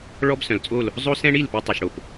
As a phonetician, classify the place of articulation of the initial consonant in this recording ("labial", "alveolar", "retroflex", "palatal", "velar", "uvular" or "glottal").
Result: retroflex